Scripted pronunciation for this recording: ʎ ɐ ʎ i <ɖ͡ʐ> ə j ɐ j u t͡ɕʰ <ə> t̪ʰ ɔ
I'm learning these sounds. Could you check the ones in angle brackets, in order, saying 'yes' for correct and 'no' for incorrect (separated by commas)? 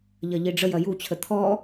yes, yes